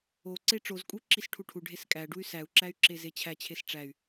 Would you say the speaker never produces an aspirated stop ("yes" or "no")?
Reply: no